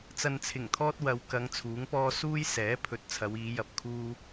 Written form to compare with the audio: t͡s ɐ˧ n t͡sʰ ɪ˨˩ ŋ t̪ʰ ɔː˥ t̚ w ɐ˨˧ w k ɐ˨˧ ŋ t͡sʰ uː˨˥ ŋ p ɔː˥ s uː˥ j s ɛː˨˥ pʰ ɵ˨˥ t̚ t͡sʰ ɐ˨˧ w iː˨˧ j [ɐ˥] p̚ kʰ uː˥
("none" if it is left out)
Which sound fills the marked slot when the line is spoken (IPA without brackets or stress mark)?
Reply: ɐ˨